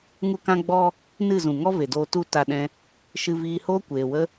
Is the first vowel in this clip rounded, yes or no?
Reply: yes